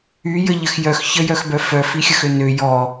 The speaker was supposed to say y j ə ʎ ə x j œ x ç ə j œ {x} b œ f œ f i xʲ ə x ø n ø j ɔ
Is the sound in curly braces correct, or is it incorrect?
correct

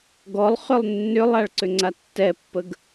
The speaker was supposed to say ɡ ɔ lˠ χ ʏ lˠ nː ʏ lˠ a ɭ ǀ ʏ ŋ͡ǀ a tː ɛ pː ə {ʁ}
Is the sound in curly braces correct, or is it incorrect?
incorrect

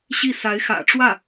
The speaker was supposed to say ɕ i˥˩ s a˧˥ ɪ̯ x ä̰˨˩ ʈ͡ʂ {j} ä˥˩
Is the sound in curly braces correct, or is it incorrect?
incorrect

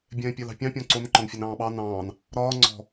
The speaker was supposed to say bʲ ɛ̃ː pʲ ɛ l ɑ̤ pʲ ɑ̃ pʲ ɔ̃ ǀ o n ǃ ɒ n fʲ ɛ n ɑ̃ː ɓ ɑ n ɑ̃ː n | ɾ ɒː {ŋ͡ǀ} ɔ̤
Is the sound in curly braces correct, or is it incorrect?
correct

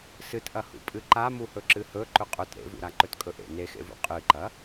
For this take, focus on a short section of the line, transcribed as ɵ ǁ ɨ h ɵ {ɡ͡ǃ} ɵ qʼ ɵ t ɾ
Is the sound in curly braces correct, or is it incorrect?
incorrect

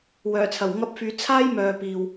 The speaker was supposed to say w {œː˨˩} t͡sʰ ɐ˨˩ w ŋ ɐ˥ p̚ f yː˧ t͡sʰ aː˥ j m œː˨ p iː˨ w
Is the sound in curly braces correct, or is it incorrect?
correct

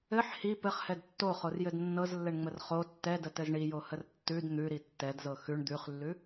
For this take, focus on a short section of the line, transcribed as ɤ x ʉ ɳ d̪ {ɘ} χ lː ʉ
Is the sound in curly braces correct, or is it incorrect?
incorrect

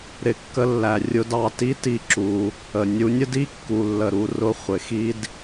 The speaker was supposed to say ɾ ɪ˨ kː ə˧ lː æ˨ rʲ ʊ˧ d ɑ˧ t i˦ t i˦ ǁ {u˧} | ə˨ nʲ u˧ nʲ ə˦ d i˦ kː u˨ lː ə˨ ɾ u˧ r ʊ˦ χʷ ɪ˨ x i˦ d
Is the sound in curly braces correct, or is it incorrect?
correct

